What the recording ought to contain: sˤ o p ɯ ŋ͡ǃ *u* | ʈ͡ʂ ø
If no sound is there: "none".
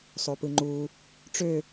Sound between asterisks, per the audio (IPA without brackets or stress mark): u